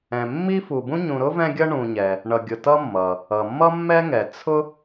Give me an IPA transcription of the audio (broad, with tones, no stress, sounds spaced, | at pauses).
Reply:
ɛ̃˨ mː i˥ f u˨ b ũ˥ ɲ ũ˨ ɾ ʊ˥ v ɛ̃˦ ɡʲ ʌ˦ ɳ ũ˨ ɲ ɛ˩ | ɳ ʌ˨ ɡʲ ʊ˨ t ʌ˥ mː ʌ˩ | ʌ˩ mː ʌ˥ mː ɛ˥ ŋ ɛ˩ t͡sʰ ʊ˥